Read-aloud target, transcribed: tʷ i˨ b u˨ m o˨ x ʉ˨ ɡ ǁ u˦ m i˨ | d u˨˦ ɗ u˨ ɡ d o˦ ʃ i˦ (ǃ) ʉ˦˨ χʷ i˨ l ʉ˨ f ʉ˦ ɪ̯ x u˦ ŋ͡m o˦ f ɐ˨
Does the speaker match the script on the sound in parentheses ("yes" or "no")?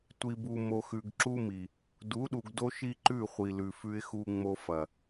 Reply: yes